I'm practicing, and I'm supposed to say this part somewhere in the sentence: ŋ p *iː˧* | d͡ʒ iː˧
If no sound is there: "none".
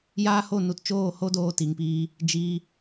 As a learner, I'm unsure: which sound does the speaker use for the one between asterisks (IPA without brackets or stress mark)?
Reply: iː˧